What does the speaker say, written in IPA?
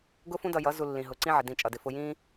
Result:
ɡʊ˦fũ˦dʌ˧jʌ˨˦ zu˧lːĩ˨ ɦʊ˨ ǀĩ˦ʕɪ˨ dĩ˧t͡ʃʼʌ˨dɪ˧ fʊ˧jĩ˦

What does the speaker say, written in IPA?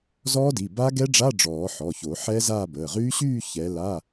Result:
zɔː˦˥di˩˧˩ ba˦˥ ɡɛ˦˥ɖ͡ʐa˧˥˧ ɖ͡ʐɔː˨˩˦ ħɔ˩˧˩ço˨˩˦ ħɛː˦˥zaː˥˧bəː˩˧˩ ʁyː˦˥ɕyː˥˧ çɛ˨˦ la˧˥˧

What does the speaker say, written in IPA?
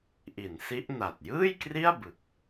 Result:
ʔi˩˦nsi˦˥ʔ na˨˩t̚ jɯː˥˩jkri˥˩a̯bɯ˨˩k̚

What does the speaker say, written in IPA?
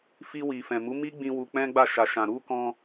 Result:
fi˧wi˨fɛ̃˨ mu˨˦mi˦ɡ͡bĩ˧ wu˧k͡pɛ̃˦ɡ͡ba˦˨ ʃa˨ʃã˨ ɾu˧kɔ̃˧

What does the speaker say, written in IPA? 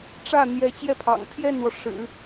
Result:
ʈ͡ʂä˥˩ n̪jɛ˧˥t͡ɕjɛ˥˩pʰɑ̰˨˩ŋ pʰjɛ˥˩nwɔ˩ ʂɻ̩˨˩˦

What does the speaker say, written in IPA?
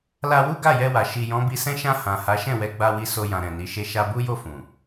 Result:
la˧wu˦ ɡa˦˨jɛ˧wa˨ ʃi˨jɔ̃˨˦bi˧sɛ̃˦ ʃã˧ hã˨ha˨˦ʃɛ̃˦˨wɛ˧ ɡ͡ba˧wi˧ so˧jã˨ ɾɛ̃˨ni˨˦ʃe˦˨ ʃa˧ bu˦jo˦˨ fũ˨

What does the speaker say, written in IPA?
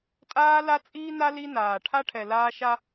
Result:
tʼaː˦la˦t͡sʼiː˦na˦ li˦naː˨ ʈʰa˦ʈʰɛ˨ laː˦ʃa˦

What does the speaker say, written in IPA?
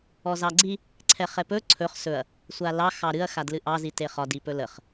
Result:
ɔzɑɡ͡ǀi | ǀʰɛχɛpɵ ǀʰɵχ sɵɐ̯ | sʷalɑ xɑɾɨɐ̯ xadlɨʔɑ ziteχɒ dipɵləχ

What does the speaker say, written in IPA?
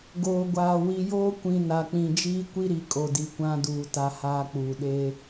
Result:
ɡoː˨ɡʷaː˨ wi˨joː˦ kʷĩ˨ na˨k͡pĩ˨ d͡ʒiː˦ kʷi˦ɾi˨ kʼo˨di˨ kʷã˦duː˨ ta˦haː˦k͡puː˨ ɗe˦

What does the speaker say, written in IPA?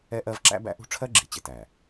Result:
ɛ˦ʔɜ˦v ǁæ̰˦bæ̰˦ʔṳ˦ ʈ͡ʂʰɜ˦ɡ͡ǁi˨t͡ɕɪ˨tæ˨

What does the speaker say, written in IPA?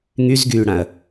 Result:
ŋyzɡyːɽãɐ̯

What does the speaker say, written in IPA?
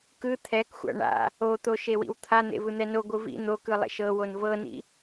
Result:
kɯ t̪ʰɛkxʷa̰ ɳa̰ | ot̪o ʃewḭwt̪ʰa n̪ḛvɯn̪ɛno ɡʷɯvḭ n̪okɯ lˠḛʃɤwon vɤnḭ

